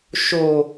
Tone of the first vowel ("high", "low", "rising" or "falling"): low